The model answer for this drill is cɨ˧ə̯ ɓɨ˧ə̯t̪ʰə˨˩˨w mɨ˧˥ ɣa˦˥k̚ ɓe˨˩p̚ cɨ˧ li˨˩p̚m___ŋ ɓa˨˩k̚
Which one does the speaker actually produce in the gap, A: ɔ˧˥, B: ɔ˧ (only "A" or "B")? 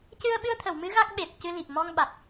B